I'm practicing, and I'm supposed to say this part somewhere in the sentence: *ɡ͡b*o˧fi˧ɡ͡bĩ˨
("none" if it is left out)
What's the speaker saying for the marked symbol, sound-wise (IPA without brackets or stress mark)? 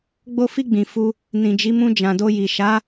ɡ͡b